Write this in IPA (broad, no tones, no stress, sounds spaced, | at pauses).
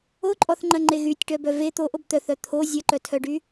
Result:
o ǃʼ ɔ θ ŋ͡ǃ ɐ ŋ͡ǃ e ɣ y tʲ ʈ œ b œ v e t̪ o ʔ o b t̪ œ θ œ t̪ʰ o zʲ ɐ ǃ œ tʰ œ ɖ y